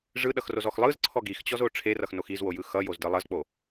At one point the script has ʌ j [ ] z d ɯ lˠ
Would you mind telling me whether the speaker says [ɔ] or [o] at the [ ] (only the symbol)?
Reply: o